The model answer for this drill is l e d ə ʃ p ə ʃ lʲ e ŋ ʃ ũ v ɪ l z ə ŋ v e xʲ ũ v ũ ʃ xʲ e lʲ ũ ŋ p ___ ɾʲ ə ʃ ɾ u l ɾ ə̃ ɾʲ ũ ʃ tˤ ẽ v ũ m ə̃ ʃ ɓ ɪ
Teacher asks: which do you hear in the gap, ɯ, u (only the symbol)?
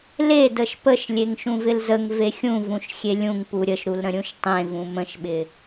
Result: u